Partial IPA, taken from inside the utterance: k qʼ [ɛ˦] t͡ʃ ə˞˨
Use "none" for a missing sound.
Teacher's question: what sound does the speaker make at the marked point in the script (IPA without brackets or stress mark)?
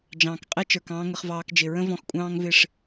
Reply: ɛ˦